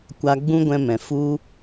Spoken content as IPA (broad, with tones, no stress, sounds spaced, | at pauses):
kʷ a˧ ɡ͡b ũ˦ ɡʷ ɛ̃˧ m ɛ̃˨ f u˦